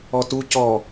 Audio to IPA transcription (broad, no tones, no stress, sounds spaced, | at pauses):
ɔ t u c ɔ